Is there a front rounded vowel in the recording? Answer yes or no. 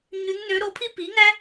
yes